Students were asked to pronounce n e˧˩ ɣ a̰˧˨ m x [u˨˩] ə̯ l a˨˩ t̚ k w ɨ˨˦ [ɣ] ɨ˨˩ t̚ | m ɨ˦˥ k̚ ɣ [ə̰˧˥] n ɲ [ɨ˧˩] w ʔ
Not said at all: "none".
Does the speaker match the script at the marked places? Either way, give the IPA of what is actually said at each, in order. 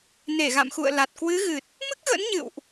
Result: ṵ˧˨, ɣ, ə̰˧˥, ɨ̰˧˨

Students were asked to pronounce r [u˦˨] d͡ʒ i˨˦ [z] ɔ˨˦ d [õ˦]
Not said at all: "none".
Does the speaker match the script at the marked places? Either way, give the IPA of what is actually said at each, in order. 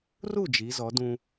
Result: u˦˨, z, ũ˦

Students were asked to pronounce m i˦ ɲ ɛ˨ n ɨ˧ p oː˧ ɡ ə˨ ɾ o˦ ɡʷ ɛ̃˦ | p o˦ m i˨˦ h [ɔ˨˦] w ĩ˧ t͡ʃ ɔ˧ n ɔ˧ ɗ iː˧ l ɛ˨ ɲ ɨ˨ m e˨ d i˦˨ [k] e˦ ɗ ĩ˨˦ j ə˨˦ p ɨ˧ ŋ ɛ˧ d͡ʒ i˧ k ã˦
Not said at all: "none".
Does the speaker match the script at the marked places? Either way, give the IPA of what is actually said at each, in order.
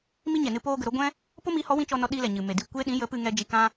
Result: ɔ˨˦, kʷ

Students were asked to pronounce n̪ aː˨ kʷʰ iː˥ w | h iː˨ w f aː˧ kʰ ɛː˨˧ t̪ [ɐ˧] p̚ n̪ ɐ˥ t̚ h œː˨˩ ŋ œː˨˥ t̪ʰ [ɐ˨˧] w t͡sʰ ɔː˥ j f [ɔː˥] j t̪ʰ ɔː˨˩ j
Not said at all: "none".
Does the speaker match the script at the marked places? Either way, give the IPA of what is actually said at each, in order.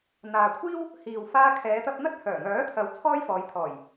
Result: ɐ˧, ɐ˨˧, ɔː˨˧

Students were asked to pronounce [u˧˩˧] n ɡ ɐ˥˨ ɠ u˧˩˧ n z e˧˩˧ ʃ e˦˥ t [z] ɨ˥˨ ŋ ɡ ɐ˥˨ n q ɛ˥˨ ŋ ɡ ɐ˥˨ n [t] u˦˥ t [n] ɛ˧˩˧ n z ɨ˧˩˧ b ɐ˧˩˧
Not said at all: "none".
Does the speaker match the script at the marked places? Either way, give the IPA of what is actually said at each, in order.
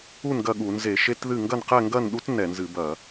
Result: u˥˨, ð, ɗ, n

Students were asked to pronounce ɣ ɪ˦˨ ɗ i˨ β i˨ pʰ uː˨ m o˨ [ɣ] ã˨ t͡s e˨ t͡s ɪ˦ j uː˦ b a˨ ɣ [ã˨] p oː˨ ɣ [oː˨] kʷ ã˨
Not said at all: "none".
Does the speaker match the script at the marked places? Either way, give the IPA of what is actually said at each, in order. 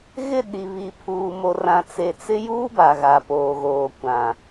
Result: r, a˨, oː˨

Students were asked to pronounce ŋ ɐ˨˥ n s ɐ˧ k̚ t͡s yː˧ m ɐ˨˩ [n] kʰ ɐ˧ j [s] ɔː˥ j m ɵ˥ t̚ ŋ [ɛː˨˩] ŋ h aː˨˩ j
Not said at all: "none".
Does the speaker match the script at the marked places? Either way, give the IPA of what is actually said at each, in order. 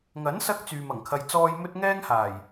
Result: ŋ, t͡s, ɛː˥

